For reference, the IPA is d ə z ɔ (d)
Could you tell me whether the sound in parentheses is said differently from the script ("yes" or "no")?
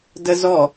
yes